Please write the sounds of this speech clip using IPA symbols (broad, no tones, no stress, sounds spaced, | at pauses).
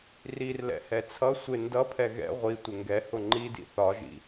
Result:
r i r l ɛ̰ h ɛ t͡sʰ ʌ sʷ ɪ n d ʌ pʰ ɛ ɣ ɛ̰ ʁʷ i tʷ ɪ ŋ ɡ ɛ h ʊ ŋ͡ǃ i d ḭ θ ɒ ʒ ḭ